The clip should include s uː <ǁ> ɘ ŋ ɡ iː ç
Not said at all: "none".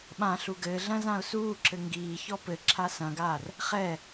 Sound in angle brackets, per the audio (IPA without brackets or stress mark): ǁ